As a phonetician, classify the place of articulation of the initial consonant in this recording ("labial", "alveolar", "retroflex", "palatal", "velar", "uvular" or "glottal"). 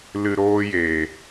alveolar